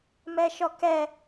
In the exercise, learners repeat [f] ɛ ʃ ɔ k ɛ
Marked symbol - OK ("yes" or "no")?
no